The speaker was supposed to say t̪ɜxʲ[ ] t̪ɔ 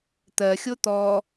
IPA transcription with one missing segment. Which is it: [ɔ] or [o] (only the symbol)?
o